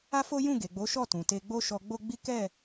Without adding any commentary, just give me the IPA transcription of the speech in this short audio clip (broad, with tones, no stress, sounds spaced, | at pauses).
a˦ f o˦ j ũ˦˨ ɡ e˨ ɡ͡b o˨˦ ʃ ɔ˦˨ t ũ˨ t e˧ ɡ͡b o˦ ʃ ɔ˧ ɡ͡b o˦ ɡ͡b i˦ k ɛ˦˨